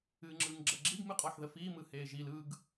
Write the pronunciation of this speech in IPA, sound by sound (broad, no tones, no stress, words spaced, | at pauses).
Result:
ɨːŋ͡ǁɯːŋɡ͡ǁɜɡ͡ǁiɡ mɨqʼɔħðəfiː mɯheːʒil ɯɡ